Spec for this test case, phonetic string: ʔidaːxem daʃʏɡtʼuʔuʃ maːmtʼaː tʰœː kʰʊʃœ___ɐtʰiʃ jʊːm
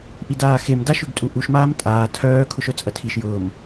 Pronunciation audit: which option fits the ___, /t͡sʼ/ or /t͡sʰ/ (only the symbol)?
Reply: t͡sʼ